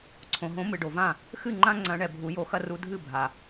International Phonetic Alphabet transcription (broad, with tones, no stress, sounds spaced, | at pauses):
ǀʰ õ˩ ɦ õ˨˦ m ɨ˩ ɖ o˩ v ã˥˩ | x ɨ˥˩ ŋ͡ǃ ã˦ ŋ͡ǀ ɐ̃˨˦ ɳ ɛ˩ bʱ u˨˩˦ j o˨˩˦ x ɐ˦ r u˨˦ dʱ ɨ˥˩ bʱ a˩